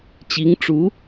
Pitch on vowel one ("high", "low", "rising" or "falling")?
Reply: rising